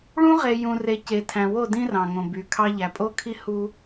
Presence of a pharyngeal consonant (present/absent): absent